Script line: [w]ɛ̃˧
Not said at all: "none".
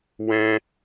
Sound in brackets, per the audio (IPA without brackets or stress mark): w